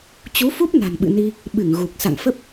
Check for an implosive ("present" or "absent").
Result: present